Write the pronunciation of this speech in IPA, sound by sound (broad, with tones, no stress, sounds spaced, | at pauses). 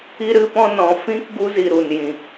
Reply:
i˧ ɾ ɨ˧ p ɔ̃˧ n ɔ̃˨ f ĩ˧ k ɡ u˧ z i˨ ɾ u˨ n j ĩ˨